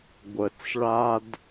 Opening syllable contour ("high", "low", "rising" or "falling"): low